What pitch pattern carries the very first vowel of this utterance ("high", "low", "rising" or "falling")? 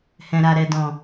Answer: low